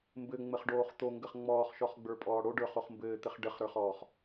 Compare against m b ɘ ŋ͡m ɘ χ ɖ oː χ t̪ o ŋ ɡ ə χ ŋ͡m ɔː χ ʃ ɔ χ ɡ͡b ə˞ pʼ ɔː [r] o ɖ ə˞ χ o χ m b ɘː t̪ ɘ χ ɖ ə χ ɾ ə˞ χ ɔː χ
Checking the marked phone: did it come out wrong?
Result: yes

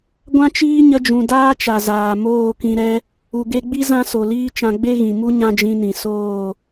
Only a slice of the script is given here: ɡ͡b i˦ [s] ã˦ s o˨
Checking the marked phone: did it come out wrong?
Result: yes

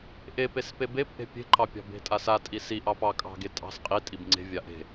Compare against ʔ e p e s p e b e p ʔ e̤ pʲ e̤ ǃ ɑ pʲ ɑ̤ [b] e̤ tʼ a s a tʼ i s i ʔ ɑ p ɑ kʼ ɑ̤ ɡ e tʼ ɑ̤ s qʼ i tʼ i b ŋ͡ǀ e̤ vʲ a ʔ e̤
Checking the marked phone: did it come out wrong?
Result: no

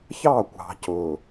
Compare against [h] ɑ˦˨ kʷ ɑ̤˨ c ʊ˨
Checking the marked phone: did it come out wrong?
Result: yes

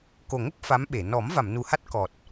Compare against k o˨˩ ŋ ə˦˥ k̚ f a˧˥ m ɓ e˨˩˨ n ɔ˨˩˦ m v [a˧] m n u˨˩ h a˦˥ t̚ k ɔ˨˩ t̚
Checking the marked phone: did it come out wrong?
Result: yes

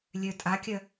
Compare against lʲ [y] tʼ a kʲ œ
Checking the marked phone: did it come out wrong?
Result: yes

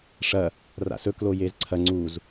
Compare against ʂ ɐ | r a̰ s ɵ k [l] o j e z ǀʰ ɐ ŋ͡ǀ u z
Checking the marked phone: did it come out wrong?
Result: no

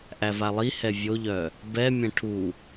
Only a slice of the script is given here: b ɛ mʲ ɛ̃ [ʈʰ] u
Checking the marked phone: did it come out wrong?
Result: no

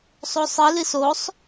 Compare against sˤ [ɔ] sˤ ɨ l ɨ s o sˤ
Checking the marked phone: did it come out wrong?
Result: yes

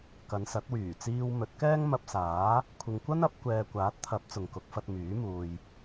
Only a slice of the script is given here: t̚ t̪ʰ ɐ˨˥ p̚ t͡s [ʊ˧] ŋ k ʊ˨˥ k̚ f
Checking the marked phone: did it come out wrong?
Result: yes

